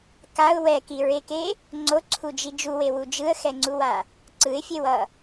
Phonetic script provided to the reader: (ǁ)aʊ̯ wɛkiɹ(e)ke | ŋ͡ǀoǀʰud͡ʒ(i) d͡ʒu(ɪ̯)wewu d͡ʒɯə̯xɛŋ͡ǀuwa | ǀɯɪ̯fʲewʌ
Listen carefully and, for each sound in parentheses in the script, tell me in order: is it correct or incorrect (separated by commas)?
incorrect, correct, correct, incorrect